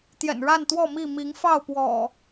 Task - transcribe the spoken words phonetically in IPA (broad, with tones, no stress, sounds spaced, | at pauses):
t̪ j ɛ̰˨˩ n ɻ a˥˨ n t̪ w ɔ˥˨ m i˥˨ m i˨˦ ŋ f ɑ˥˨ ʊ̯ p w ɔ̰˨˩